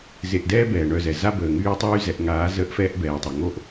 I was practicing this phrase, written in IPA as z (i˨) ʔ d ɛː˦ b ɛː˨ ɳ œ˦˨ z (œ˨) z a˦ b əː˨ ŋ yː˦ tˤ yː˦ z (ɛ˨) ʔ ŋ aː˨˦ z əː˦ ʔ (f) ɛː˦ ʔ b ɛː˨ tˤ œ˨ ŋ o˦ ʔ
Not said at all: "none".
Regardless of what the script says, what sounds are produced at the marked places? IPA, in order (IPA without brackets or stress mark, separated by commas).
e˨, ɛ˨, ɛ˨, f